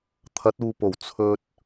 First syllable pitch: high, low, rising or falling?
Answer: rising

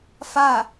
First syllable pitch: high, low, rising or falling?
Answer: falling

